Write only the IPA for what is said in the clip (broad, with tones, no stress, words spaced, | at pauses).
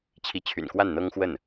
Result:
t͡ɕʰi˧˥t͡ɕʰy̰˨˩nkwa˥˩n n̪ɤ˥ŋxwə˥˩n